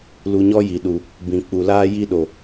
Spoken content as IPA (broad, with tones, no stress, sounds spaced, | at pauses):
l u˧ ɲ ɔ˦ j i˨ ɗ u˨ | b ĩ˨ k͡p u˨ l aː˧ j i˧ ɗ o˨